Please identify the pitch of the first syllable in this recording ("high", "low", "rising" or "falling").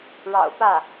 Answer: low